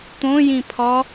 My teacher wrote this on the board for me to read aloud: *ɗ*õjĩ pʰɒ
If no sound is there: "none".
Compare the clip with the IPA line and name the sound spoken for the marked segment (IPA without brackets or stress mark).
t̪